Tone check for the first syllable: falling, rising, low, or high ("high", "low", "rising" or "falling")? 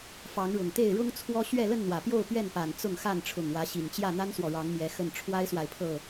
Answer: rising